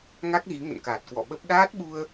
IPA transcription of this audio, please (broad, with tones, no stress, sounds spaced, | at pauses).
ŋ a˦˥ k̚ ɣ i˨˦ ŋ ə̰˧˨ n k aː˨˩ t̚ k w ɔ̰˧˨ ɓ ə˦˥ p̚ ɗ aː˦˥ t̚ ɓ u˧ ə̯